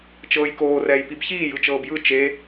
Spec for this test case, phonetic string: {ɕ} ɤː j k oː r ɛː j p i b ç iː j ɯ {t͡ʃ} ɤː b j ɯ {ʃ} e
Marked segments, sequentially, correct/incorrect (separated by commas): incorrect, correct, incorrect